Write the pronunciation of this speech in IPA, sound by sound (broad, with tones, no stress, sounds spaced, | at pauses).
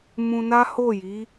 m ũ˧ n a˦ h o˦˨ j i˨˦